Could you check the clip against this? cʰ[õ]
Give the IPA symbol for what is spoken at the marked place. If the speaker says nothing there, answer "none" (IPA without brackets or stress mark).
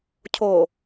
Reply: o